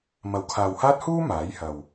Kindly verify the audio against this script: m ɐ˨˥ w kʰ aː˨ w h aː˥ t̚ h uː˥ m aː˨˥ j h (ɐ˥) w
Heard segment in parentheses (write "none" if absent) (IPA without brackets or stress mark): ɐ˨